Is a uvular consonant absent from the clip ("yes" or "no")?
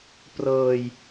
yes